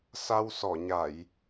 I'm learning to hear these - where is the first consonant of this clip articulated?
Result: tongue tip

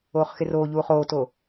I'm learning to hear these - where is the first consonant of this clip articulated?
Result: uvula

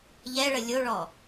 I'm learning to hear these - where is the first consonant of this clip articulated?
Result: palate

